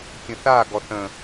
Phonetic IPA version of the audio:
kʲ ə̃ θ a ɡ ɔ θ ə̃

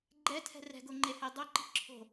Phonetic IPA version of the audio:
ɡ͡ǃ ɛ tʰ ɛ̤ r ɛ̤ ɡ o ŋ͡ǃ e h e dˤ o ǃ i̤ ǁʰ o̤

